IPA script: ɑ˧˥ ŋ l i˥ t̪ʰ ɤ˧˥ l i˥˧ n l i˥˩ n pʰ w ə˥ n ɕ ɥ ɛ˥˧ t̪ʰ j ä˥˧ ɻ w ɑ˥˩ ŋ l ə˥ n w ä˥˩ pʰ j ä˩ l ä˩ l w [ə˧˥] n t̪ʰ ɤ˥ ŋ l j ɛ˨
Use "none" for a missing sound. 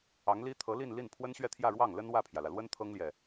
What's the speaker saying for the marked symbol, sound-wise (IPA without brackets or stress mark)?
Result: ə˥